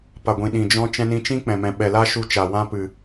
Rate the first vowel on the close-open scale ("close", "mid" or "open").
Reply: open